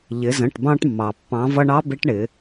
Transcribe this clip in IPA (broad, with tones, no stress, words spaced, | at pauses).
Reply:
ʎɪ˩˧zə̃˩˧˩ʈbɑ̃˧ʈmːɑ˩ pːɑ̃˩˧vʌ˧ɳɑ˧˥ bɪ˧˥ʈɳɪ˩˧